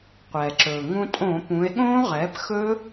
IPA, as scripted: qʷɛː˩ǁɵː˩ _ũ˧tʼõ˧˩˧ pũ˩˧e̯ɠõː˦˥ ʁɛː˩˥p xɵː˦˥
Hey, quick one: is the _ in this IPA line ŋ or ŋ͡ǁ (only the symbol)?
ŋ